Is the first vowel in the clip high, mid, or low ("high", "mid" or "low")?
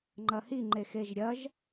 low